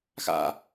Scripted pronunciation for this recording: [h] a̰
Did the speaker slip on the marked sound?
yes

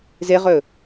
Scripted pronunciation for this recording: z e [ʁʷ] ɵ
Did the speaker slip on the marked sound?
yes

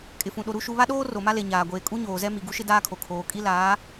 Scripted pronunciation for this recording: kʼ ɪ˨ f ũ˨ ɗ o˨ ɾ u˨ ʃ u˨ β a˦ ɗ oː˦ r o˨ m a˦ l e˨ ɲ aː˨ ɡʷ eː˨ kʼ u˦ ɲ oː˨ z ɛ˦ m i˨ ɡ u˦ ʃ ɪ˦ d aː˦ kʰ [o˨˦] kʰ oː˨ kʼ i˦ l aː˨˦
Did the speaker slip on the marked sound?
yes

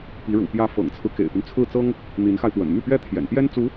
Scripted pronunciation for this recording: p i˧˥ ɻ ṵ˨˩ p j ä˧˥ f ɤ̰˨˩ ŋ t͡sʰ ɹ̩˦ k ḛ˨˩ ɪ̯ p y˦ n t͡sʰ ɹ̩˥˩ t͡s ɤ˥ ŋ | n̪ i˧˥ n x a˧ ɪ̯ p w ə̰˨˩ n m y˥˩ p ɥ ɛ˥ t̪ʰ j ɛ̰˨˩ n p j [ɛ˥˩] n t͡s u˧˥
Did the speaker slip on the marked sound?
yes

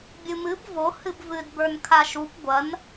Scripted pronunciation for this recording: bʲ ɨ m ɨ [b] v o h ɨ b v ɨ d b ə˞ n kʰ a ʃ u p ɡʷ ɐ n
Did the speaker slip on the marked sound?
no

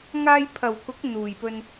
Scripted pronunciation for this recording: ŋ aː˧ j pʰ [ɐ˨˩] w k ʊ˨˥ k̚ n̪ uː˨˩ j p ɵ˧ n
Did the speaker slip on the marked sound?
no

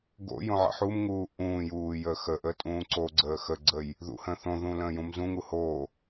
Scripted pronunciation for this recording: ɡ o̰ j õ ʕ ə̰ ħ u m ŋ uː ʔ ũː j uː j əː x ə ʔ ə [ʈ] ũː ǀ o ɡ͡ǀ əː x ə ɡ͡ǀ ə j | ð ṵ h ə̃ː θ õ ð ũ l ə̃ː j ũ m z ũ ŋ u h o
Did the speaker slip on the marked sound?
yes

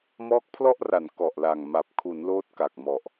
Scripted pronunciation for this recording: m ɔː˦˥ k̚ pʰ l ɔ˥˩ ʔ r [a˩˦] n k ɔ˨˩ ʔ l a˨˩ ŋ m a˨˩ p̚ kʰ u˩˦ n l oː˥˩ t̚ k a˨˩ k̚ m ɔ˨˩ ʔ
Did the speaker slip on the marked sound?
no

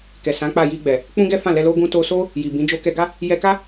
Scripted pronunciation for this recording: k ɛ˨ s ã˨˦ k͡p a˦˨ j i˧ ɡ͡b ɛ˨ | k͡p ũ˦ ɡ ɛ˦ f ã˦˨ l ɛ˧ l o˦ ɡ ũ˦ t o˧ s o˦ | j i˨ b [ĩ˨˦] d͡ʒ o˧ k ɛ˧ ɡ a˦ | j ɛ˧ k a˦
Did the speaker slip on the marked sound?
no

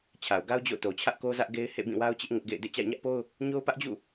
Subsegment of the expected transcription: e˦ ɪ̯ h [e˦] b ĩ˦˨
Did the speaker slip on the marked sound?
yes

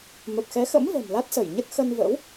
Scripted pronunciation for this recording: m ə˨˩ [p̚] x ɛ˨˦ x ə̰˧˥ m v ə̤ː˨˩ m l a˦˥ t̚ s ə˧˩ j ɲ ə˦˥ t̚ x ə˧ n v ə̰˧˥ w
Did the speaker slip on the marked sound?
no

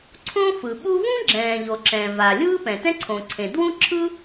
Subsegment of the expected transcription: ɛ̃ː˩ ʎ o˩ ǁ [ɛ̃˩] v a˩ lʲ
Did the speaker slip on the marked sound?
no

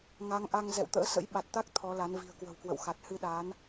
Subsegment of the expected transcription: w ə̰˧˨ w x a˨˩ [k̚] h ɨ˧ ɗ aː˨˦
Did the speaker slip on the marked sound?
yes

